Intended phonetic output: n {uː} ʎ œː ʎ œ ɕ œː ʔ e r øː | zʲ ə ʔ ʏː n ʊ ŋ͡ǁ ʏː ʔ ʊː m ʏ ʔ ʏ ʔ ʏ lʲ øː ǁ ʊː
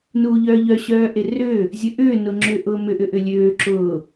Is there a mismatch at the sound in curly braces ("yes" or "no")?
no